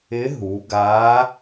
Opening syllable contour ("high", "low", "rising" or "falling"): rising